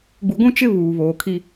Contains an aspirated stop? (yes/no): yes